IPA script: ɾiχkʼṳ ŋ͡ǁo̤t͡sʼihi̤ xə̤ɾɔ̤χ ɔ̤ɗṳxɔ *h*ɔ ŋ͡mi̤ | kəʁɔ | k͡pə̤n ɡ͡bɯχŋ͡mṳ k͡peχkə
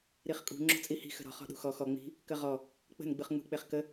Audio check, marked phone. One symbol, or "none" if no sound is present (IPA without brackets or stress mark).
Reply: x